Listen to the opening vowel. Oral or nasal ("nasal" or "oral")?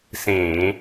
nasal